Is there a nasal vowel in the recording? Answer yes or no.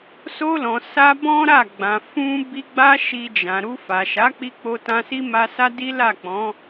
yes